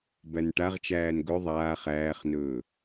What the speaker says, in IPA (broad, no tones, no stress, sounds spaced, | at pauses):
b æ n ʈ a ʁ t͡ʃ æː n ɡ ɵ ðˤ aː χ æː χ n ɵː